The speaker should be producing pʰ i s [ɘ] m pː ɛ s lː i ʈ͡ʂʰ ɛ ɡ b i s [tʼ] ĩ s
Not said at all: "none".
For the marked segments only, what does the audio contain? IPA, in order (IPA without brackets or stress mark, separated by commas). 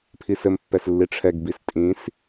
ɘ, tʼ